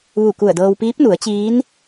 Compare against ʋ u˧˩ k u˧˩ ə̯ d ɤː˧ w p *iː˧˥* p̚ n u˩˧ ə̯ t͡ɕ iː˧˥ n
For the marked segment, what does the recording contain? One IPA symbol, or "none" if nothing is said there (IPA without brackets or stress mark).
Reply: iː˧˥